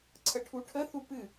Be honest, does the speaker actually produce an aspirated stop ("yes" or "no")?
yes